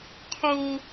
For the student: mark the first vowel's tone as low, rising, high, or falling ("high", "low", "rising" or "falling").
high